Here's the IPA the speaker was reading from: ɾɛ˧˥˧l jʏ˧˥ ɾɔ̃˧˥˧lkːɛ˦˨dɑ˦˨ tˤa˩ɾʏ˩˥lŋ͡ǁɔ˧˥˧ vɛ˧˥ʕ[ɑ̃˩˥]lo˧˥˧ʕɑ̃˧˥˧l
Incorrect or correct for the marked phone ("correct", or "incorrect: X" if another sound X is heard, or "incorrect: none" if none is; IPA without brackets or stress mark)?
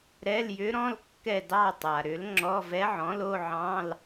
incorrect: ɔ̃˩˥